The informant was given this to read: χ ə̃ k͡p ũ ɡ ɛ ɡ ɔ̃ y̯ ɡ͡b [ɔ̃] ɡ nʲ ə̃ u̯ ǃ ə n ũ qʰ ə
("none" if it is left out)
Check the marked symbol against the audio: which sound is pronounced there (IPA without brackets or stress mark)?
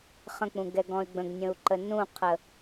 ə̃